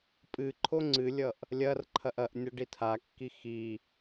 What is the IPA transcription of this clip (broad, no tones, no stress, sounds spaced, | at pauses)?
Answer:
pʼ ɨ ǃʰ o ŋ͡ǀ ɨ lʲ ʌ ʔ | lʲ ɐ r ǃʰ ɐ ʔ ɐ ʔ nʲ ʌ ɖ i tʰ a kː i x i